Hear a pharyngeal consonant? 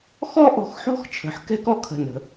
yes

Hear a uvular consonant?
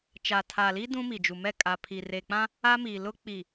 no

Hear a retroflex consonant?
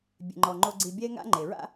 no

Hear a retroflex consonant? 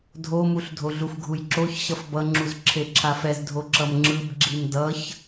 no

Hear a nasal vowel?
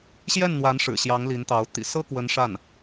no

